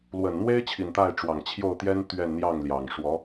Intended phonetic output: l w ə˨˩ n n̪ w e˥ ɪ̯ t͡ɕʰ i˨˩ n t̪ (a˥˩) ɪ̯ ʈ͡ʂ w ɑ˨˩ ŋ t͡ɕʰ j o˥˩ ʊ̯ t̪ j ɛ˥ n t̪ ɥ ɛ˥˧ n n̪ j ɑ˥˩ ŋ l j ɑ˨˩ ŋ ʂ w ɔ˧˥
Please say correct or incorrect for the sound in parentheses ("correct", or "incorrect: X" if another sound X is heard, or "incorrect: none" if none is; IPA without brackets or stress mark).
correct